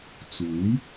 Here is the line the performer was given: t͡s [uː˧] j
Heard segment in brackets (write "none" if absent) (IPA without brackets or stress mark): uː˨˥